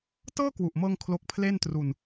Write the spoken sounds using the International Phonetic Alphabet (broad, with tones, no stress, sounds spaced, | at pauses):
t ɤː˥˩ k w u˨˩ ʔ m ɤː˧ ŋ kʰ l o˦˥ k̚ pʰ l e˥˩ n t r u˧ n